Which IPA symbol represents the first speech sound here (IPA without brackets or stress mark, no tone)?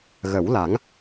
ɣ